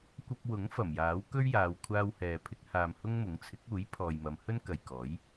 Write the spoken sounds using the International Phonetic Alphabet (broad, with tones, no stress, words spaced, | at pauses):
kʷɐ˧p̚wʊ˨˥ŋ fɐ˨˩mjaː˨˥wkɵ˥ɥjaː˨˧w kʷʰaː˥whɛː˧pʰɪ˥k̚ haː˧mhʊ˥ŋmʊ˨˥ŋ t͡sʰɪ˨˥k̚uː˨˥j pʰɔː˨jmɐ˨˧m hɵ˥nkɐ˨j kɔː˨˥j